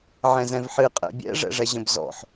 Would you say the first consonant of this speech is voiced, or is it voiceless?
voiced